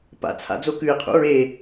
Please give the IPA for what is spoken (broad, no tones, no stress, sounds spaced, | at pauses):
p a̰ t͡sʰ a̰ d͡z o k ʉ ɪ̯ qʰ ṵ ɹ e